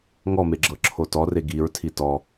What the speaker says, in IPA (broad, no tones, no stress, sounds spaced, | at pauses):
ŋ ɔ m e ɡ͡ǁ ɤ ǁʰ o t ɔ r e ɡ i ɹ tʰ i t ɔ